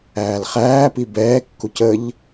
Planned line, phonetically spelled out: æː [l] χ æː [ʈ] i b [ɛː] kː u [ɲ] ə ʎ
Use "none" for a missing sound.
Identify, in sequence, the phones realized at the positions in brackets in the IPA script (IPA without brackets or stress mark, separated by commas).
l, p, ɛː, c